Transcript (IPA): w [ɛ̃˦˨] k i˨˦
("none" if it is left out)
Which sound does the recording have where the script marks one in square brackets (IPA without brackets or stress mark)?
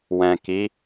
ɛ̃˨